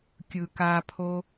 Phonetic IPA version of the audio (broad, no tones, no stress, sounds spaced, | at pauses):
kʲ ɯ k a pʰ o